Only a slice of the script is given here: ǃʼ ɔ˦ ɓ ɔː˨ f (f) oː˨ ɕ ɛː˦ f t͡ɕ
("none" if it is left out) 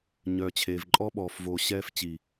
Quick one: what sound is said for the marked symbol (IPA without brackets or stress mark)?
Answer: v